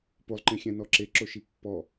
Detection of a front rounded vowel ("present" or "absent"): absent